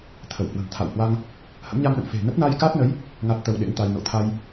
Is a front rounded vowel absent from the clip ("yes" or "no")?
yes